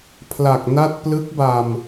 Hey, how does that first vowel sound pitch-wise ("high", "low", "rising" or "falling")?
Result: low